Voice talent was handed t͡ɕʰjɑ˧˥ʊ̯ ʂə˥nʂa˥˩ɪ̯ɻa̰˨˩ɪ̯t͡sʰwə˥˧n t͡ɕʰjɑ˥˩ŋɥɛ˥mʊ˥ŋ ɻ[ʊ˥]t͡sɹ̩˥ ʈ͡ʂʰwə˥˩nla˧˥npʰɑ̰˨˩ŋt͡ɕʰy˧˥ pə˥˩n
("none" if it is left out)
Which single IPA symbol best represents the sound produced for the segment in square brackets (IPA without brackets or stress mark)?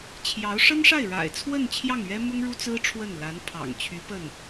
u˥